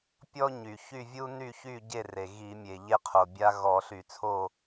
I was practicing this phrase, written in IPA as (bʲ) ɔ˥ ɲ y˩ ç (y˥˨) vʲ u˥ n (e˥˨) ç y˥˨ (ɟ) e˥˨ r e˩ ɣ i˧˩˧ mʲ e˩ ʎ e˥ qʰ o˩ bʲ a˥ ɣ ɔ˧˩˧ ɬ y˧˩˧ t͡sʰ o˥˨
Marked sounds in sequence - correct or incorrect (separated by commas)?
incorrect, correct, incorrect, correct